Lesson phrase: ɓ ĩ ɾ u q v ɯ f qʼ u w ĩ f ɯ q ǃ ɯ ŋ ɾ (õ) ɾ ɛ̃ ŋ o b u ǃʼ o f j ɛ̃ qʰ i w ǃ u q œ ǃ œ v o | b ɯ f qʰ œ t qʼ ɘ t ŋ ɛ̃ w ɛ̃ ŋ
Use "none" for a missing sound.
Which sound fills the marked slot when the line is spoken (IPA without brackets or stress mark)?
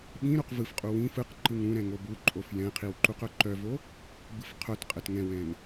ũ